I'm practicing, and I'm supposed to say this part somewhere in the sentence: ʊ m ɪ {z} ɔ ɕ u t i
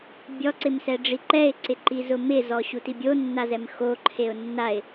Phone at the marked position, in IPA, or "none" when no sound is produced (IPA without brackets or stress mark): z